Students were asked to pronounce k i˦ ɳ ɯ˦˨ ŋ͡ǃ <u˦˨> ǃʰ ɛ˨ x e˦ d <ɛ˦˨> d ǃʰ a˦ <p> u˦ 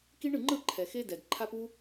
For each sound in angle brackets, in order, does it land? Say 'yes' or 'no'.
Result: no, no, yes

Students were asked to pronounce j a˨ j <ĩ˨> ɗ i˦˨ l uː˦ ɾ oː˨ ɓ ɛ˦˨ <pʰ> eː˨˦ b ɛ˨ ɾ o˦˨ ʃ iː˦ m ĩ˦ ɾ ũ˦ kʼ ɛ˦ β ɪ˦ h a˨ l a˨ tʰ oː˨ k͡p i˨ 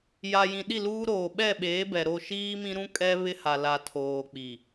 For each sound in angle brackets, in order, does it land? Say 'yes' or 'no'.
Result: yes, no

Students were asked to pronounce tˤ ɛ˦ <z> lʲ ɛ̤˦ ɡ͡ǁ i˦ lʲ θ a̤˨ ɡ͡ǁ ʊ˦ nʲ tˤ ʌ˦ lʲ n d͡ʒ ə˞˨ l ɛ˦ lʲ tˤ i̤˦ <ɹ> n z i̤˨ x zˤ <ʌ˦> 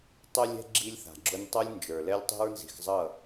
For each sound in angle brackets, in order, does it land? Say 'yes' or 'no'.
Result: no, yes, no

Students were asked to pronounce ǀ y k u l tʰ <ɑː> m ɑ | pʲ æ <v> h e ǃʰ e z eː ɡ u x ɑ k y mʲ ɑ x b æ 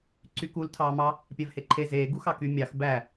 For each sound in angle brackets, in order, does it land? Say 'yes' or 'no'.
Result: yes, yes

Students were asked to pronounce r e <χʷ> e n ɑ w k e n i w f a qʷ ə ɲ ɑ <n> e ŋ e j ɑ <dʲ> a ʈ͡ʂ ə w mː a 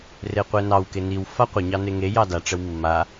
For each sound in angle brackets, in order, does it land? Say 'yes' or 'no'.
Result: no, yes, no

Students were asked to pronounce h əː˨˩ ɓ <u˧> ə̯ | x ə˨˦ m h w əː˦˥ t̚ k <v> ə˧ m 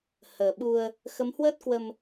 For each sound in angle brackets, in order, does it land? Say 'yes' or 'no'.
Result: yes, no

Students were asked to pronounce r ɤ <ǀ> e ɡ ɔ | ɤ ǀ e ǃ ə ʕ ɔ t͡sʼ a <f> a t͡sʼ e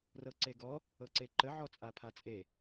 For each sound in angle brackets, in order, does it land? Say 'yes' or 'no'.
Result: yes, no

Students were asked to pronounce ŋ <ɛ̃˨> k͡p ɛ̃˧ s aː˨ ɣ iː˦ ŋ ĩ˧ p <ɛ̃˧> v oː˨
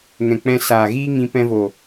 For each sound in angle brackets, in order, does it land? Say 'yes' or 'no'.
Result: yes, yes

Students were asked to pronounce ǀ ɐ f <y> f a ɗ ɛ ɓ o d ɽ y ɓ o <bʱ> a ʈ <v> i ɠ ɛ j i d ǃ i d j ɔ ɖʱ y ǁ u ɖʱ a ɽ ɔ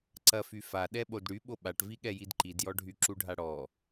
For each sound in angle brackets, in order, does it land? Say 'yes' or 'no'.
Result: yes, no, yes

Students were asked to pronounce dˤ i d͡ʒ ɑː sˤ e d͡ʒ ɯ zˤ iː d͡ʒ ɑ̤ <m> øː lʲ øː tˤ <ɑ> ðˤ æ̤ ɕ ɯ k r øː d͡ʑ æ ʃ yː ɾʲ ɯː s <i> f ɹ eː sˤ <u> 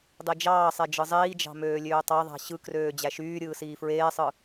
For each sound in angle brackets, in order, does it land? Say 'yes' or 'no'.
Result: yes, yes, no, no

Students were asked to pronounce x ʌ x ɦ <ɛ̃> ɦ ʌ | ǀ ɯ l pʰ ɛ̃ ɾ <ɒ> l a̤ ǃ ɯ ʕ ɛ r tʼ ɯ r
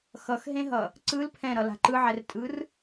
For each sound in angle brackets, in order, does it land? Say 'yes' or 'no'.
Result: no, no

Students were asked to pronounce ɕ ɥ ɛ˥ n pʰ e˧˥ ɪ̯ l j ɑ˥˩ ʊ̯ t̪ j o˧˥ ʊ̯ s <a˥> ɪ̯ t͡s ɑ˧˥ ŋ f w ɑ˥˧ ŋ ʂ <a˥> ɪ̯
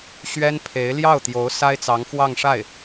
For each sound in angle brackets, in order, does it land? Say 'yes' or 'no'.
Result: yes, no

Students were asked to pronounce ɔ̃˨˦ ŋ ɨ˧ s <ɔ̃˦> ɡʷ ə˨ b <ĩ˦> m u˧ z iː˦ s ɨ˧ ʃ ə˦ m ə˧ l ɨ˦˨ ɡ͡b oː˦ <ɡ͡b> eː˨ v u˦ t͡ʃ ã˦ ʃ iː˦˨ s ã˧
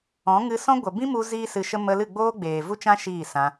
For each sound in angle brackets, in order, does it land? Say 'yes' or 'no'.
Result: yes, yes, yes

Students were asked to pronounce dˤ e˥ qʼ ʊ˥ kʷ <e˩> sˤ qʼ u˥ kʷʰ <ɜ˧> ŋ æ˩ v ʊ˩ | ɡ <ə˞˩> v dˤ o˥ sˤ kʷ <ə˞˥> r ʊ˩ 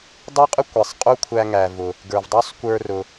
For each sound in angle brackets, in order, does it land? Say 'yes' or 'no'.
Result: yes, no, yes, no

